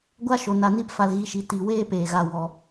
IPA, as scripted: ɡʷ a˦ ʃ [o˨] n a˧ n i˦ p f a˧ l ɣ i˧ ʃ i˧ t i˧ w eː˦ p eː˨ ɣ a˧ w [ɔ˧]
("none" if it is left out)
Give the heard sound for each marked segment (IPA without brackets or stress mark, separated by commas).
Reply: o˨, ɔ˧